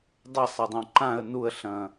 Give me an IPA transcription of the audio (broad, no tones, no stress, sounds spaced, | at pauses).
dˤ ɐ sˤ a dˤ õ ǃ ã ə̯ n u ə̯ ɬ ɐ̃